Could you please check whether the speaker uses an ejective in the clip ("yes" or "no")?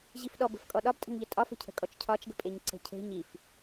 yes